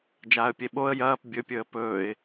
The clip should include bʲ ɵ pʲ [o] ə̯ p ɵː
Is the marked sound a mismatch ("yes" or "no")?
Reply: yes